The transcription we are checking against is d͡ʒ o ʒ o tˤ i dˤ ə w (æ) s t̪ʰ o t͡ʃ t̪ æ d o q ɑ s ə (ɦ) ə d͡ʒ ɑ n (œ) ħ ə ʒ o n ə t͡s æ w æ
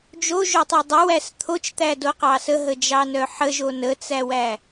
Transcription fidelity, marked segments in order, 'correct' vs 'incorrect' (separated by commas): correct, correct, correct